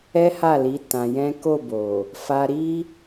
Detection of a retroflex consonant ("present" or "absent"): absent